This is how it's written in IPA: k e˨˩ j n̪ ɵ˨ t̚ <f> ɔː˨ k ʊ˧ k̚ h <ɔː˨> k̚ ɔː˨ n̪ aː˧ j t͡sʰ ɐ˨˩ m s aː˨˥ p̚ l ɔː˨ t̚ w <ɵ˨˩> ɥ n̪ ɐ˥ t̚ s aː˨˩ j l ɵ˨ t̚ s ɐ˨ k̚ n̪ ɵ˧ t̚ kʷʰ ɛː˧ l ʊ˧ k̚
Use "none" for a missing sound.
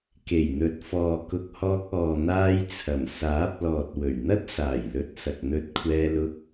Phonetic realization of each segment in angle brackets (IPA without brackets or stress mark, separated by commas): f, ɔː˧, ɵ˨˩